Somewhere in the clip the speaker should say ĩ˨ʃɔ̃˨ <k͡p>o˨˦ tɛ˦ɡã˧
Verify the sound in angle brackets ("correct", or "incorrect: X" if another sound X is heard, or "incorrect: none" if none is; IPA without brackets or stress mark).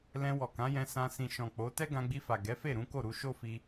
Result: correct